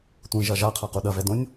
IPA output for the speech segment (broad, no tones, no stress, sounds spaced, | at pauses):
tʷ ĩ ʒ ɐ ʒ a qʰ a q u ɗ ɐ v ɛ d õ nʲ